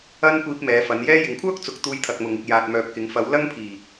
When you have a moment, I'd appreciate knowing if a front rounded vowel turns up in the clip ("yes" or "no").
yes